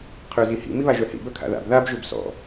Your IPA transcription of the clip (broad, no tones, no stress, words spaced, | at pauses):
qʰøzihḭ miβaʒœhḭ bœkʰa̰ða̰b ðab ʒøbsɔ̰